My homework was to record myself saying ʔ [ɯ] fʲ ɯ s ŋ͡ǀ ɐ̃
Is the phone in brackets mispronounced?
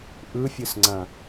no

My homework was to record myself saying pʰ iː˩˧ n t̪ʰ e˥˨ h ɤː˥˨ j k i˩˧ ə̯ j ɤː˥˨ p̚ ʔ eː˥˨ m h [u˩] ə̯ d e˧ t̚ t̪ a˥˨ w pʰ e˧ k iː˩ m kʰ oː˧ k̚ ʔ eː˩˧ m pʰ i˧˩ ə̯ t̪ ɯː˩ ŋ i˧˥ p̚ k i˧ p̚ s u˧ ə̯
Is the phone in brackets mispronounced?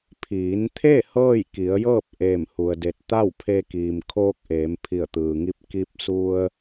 yes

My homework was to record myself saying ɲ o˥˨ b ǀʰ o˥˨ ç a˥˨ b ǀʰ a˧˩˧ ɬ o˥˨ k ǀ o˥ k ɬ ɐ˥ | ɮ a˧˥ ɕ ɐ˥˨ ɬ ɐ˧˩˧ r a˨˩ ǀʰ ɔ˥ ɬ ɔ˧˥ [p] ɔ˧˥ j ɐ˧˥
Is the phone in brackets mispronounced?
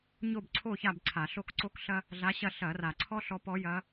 no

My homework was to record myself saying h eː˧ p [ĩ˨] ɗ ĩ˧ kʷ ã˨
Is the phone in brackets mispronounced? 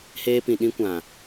no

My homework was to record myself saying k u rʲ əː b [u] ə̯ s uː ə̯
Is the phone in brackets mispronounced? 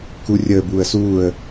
yes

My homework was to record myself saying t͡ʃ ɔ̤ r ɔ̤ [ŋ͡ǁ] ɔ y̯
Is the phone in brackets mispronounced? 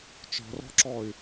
yes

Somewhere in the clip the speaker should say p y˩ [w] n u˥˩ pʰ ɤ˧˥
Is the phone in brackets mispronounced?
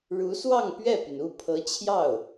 yes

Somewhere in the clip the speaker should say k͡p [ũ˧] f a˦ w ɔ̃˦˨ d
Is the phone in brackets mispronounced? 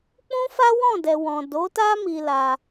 yes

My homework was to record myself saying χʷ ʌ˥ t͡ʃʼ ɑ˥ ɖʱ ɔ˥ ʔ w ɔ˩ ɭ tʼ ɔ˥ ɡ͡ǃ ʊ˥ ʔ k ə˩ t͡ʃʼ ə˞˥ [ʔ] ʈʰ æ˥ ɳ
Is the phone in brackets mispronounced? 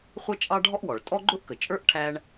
no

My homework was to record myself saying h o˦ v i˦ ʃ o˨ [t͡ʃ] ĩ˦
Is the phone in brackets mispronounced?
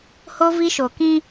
yes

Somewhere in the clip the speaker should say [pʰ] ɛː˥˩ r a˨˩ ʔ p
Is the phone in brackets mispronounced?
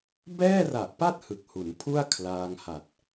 yes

